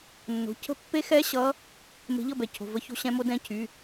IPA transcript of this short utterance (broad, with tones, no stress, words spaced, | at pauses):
nːo̤˩˧˩ cʰə̤˧˥pːe˧˥xɛ˧˥ ɕʌ˧˥ | me̤˧˥ʎʌ˥˧bɛ˩˥cʰo̤˩˧˩ və˧˥ço̤˧˥ɕɛ̃˧˥mo˧˥ dɛ̃˧˥cʰy˩˧˩